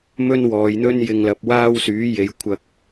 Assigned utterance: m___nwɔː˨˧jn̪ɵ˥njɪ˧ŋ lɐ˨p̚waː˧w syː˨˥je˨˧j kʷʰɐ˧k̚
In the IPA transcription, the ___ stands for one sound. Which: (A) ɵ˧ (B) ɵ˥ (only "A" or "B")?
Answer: B